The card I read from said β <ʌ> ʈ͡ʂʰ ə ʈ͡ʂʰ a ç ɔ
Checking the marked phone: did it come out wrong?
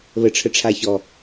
yes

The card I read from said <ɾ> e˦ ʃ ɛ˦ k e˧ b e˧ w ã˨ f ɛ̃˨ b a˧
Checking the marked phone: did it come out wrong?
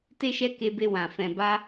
yes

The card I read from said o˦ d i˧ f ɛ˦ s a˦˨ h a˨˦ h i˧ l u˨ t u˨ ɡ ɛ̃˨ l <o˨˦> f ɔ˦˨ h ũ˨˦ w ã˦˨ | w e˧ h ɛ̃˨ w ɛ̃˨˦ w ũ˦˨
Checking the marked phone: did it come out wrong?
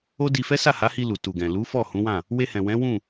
yes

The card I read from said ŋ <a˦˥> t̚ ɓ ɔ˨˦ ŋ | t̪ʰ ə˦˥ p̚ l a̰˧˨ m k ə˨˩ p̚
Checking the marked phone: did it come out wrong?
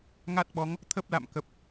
no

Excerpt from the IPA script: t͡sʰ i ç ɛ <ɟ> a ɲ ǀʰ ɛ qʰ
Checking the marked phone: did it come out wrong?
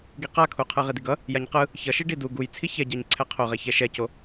no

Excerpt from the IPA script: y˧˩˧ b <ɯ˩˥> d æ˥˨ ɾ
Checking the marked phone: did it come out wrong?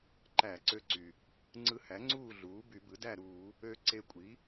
no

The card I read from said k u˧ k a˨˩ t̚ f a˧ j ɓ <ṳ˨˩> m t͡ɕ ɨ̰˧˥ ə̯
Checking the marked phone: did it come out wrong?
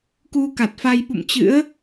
yes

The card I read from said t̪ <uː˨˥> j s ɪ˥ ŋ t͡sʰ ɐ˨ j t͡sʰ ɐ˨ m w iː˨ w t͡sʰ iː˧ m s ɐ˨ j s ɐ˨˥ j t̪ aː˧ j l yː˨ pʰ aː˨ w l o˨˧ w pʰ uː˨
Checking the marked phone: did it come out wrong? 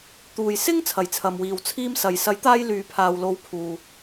yes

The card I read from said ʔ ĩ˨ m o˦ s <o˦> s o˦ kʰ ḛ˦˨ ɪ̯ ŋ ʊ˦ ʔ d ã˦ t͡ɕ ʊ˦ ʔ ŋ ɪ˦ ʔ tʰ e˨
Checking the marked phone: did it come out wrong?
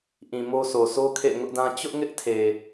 yes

